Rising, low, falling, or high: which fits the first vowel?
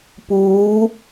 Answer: rising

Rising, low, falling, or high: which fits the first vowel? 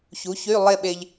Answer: rising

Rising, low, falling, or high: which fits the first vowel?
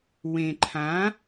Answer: low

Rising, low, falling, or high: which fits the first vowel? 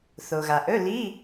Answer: low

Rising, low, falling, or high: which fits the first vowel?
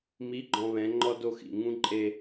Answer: rising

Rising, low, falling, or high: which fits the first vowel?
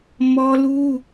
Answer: high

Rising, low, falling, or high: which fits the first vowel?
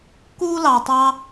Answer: high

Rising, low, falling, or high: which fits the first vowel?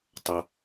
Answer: low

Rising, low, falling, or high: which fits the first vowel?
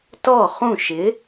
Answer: falling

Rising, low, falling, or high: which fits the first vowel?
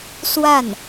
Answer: falling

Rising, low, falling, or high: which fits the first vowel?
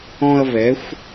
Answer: high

